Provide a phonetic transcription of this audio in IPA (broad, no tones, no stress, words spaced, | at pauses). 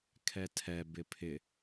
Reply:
kʰɛtʰɛ bɪpʰɪ